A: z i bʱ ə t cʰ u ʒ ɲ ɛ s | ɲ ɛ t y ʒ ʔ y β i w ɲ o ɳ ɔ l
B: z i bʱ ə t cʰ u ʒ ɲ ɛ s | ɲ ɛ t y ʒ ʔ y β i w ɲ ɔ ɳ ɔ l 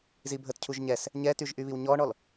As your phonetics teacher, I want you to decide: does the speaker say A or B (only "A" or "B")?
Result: B